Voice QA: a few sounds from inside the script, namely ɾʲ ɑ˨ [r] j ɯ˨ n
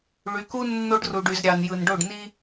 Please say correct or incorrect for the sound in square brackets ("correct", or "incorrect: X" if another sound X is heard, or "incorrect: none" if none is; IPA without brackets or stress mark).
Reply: incorrect: n